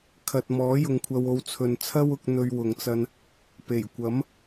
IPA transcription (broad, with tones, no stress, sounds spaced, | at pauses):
kʰ ɐ˨ t̚ m ɔː˨˥ j ʊ˨ ŋ kʷʰ ɐ˧ w o˧ w t͡sʰ ɵ˨ n t͡sʰ ɐ˥ w ʊ˧ k̚ n̪ ɵ˧ ɥ w ʊ˨˧ ŋ t͡s ɐ˧ n | p e˨˩ j kʷ ɐ˨˥ m